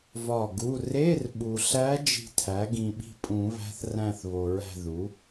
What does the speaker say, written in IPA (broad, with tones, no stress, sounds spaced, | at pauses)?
v ɒ˦˨ ɡ u˧˥˧ r e˧˥˧ r ɓ u˨ ɬ æ˧˥ d͡ʒ i̤˦˨ tʰ æ˩˥ ɡ ĩ˨ ɓ i̤˦˨ pʼ ũ˨˩˦ β æ̤˧˥ θ r æ̃˦˨ θ β o˨ ɹ æ̤˦˨ ð u˩˥